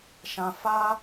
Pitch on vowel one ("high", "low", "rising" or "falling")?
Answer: high